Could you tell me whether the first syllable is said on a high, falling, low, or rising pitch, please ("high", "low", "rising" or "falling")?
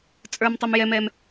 high